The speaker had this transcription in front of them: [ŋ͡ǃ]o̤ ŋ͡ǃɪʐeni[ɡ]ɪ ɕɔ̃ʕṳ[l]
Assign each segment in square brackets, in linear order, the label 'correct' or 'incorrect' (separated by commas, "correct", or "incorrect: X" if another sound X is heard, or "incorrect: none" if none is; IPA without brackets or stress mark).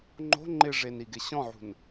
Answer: correct, correct, incorrect: n